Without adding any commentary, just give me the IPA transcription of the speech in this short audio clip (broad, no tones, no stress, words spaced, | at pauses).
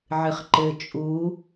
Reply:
ʕɨχǃɘ t͡ʃʼu